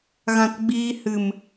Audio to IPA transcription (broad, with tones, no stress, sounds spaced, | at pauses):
ɣ ã˧ t ɡ͡b iː˧ h ɨ˨ m